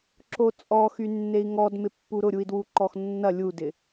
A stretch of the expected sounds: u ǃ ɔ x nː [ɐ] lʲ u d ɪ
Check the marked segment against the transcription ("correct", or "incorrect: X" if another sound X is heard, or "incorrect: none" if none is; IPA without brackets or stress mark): correct